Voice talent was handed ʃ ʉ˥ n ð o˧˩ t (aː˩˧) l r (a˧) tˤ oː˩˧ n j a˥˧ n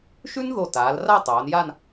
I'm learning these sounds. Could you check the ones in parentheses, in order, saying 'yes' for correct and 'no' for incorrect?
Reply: yes, no

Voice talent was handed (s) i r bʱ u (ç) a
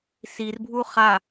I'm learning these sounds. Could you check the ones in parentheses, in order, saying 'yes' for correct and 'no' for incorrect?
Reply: yes, no

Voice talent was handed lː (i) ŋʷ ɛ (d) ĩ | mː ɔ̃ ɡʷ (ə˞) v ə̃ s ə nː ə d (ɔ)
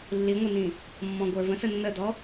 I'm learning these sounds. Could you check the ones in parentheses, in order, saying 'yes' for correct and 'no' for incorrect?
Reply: yes, no, yes, yes

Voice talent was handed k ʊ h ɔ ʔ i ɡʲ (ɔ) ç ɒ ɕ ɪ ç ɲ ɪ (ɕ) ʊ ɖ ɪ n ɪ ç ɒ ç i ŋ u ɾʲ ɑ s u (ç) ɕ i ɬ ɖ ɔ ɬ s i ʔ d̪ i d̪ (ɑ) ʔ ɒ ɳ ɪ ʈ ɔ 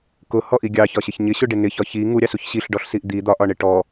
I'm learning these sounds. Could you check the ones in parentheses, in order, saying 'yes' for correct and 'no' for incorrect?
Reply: no, yes, yes, no

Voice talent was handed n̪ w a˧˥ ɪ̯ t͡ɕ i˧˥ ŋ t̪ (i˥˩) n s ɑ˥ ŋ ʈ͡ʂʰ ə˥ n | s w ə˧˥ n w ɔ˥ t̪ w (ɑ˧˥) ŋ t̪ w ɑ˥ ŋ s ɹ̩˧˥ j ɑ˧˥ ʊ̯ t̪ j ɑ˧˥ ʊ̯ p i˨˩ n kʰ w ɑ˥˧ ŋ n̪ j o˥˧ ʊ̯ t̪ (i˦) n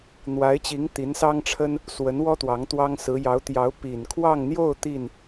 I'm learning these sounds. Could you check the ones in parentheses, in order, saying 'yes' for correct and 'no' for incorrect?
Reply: no, yes, no

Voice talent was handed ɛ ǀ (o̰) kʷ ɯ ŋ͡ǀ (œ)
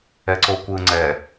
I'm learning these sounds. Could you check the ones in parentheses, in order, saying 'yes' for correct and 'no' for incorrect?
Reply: no, no

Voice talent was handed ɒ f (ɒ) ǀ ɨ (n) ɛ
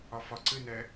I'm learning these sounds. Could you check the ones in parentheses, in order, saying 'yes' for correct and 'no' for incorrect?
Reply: yes, yes

